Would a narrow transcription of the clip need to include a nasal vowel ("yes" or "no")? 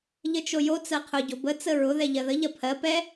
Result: no